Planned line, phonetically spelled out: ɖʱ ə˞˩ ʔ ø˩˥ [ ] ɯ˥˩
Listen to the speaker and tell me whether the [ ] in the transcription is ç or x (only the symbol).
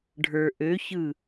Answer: ç